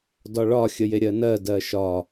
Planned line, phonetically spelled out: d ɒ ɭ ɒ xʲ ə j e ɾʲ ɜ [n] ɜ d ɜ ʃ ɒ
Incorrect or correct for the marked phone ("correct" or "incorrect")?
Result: correct